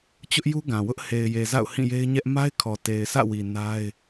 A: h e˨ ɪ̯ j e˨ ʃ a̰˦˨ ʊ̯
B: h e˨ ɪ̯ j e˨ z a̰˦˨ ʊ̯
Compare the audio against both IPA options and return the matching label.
B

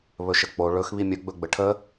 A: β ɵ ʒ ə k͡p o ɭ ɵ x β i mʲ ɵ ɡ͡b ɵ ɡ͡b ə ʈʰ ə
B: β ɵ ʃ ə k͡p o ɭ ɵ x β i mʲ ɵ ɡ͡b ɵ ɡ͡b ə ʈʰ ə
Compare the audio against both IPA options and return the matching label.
B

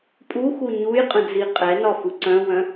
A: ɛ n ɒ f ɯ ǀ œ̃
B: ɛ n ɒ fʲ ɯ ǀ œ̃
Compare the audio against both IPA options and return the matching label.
A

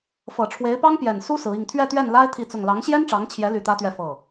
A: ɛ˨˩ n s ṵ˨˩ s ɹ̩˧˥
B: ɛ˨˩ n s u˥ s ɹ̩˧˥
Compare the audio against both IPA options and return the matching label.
B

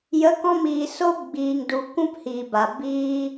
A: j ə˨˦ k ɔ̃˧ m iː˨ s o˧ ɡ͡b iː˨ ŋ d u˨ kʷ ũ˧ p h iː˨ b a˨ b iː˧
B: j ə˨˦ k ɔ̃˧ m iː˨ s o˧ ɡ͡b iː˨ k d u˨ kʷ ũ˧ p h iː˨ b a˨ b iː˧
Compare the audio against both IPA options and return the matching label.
A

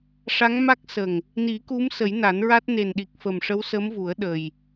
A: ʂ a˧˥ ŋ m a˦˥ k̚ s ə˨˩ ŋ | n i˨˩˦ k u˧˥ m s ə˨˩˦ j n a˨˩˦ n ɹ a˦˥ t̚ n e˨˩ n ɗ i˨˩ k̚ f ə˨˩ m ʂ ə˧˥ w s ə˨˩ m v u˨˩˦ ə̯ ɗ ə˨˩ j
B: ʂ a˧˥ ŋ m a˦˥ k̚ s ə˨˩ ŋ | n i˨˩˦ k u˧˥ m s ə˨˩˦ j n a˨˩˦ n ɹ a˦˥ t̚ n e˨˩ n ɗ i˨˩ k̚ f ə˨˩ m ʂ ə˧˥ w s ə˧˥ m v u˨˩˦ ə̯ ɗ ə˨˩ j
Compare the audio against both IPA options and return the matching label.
B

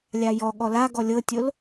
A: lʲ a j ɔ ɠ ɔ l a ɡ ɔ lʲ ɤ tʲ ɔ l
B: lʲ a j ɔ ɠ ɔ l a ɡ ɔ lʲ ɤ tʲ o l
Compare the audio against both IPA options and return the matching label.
B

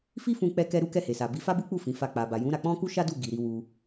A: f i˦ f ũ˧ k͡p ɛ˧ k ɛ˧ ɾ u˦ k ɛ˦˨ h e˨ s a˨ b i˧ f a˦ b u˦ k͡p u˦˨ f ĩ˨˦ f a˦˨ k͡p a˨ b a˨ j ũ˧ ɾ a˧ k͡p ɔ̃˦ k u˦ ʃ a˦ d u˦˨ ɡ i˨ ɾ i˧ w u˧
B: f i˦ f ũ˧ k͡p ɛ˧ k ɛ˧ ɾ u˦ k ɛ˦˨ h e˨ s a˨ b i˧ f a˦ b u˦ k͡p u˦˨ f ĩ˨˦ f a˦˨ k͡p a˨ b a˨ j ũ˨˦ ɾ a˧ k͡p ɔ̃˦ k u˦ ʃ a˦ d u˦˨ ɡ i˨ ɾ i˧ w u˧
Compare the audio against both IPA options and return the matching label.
B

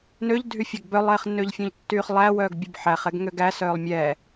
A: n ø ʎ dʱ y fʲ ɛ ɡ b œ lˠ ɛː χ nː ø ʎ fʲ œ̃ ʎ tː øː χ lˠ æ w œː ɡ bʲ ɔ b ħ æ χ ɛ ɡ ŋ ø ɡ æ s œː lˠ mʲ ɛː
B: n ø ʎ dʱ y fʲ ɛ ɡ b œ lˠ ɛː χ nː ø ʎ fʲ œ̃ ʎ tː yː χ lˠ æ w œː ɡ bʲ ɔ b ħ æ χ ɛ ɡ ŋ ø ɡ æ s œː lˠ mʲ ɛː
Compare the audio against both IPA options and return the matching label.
B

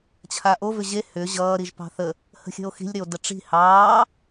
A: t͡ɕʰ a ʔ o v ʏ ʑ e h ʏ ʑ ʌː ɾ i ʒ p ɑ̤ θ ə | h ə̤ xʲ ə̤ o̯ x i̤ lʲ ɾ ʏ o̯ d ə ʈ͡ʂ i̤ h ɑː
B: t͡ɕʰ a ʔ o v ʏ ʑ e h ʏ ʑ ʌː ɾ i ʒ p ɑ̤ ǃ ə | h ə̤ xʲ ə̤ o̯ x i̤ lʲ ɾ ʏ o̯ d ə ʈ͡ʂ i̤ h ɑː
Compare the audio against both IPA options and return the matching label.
A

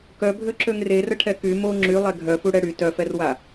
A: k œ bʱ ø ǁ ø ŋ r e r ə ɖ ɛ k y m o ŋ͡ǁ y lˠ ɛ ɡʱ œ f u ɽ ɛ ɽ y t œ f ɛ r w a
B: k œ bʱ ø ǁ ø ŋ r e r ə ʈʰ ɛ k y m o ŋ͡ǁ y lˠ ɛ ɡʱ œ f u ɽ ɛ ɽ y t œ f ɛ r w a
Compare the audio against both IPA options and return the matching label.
B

